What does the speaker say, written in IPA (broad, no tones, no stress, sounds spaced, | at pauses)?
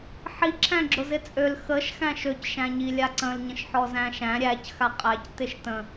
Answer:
ħ i ǁʰ æ̃ ɡ͡ǁ ʊ z ɪ t͡sʼ ø l x ə ʃ x æ̃ ʃ ø c ʃ æ̃ ɲ i lʲ a ǀ ə̃ l ɲ ə̃ ʃ ħ ɔ z æ̃ ʃ æ̃ ɾʲ æ c x a qʼ æ c t ɪ ʃ t ə̃